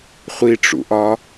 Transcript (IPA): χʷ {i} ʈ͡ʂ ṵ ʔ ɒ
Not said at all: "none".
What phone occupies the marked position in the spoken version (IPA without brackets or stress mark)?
i